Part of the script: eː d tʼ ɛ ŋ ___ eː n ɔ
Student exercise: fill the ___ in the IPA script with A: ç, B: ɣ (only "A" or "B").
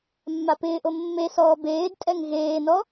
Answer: B